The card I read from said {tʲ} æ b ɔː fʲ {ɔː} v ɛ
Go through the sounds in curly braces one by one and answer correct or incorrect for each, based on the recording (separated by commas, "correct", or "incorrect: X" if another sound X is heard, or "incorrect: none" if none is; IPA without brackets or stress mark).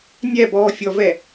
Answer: incorrect: nʲ, incorrect: ɔ